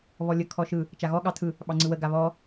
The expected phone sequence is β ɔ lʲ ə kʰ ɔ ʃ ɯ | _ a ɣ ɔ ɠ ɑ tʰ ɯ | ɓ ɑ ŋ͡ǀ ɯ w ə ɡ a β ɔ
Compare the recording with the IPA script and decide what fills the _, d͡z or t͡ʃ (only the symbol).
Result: t͡ʃ